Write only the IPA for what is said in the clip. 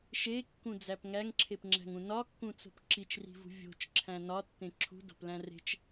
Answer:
ʃekːũd͡zæp ŋæŋǁʰepŋ͡ǁæ̤ŋũ nɒkːũt͡so̤p ǁit͡ʃri̤vṳ vʲo̤t͡ʃǁʰæ̃ nɒtːẽ ǁʰṳdo̤plæ̃ re̤t͡ʃ

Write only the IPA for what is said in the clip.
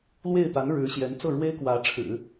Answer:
lwe˥˩ɪ̯t̪a˧˥n ɻɻ̩˧˥ɕjɛ˧˥n t͡sɤ˥˩ɻwe˥ɪ̯kwä˧˥ʈ͡ʂʰɻ̩˨˩˦

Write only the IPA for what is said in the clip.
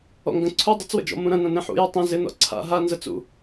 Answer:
ɔ̰ŋɡə̃ ǀʰu dˤɪt͡swə̰d͡ʒɔ̰ mũɾɐ̃ nɐ̃nẽħṵjy tˤẽ zɪnɔ̰ ǀʰa̰ ɦanzə t͡sṵ

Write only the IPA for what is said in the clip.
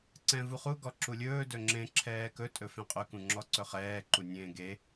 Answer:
ǀɛ̃vuχu ɡɔǁulʲɵː dɵŋ͡ǁẽ ǁʰɛːkɵ tʼɵfẽqʼɵ kũŋ͡ǁɔǀɵχɛː ǃunʲẽːɡe

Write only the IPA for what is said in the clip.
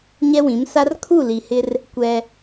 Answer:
ɲɛ˦wĩ˨˦msa˦r kʰu˦˨li˨hɪ˦r | kʷɛ˦

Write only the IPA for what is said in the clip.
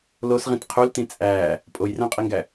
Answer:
losʁĩt qʰultĩ t͡sʼæː | pʼojræ̃qʼiŋɡæ

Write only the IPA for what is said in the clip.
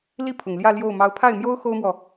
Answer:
li˥˩ pʰʊ˨˩ŋ ljä˥˧ljo˥˩ʊ̯ mɑ˧˥ʊ̯pʰa˥˩ɪ̯mjo˥ʊ̯ xo˥ʊ̯mwɔ˨

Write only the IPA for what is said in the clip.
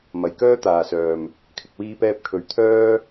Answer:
mɐ˨jkœː˥t̪aː˨sœː˨m | kʰɪ˨k̚wiː˧pɛː˧p̚ kʰɵ˨˧ɥ t̪ʰœː˥

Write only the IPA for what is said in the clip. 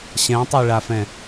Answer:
ɕɛ̃tˤeɭafɛ̃

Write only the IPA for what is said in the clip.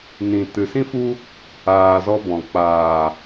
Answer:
nĩ˨ tɨ˨sĩ˦fu˦ | aː˨zɔ˧bɔ̃˨ k͡paː˨

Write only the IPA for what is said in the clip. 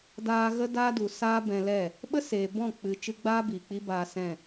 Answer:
daː˧ ɣə˦daː˦du˨ saː˦bɛ̃˧lɛ˦˨ | ɓə˦seː˨ bɔ̃˦˨ k͡pɨ˨ t͡ʃɨ˧ɡ͡baː˦ bi˨k͡pi˦baː˧ sɛ̃˦˨

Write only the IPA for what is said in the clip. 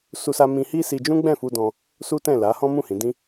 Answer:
su˦sa˦ mĩ˧hi˦ si˧d͡ʒũ˦ ɡ͡bɛ̃˦˨fu˧dɔ̃˧ | su˦tɛ̃˦˨ la˨˦hɔ̃˦ mũ˦˨hĩ˨˦dĩ˦

